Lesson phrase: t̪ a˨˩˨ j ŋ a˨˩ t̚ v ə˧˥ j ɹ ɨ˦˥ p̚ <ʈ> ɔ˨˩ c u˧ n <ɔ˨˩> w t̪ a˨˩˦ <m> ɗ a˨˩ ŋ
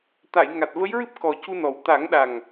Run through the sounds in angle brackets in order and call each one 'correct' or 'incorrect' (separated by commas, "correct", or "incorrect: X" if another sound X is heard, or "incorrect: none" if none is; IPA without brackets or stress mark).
incorrect: k, correct, incorrect: ŋ